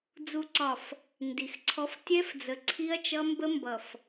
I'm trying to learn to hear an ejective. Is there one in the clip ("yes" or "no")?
no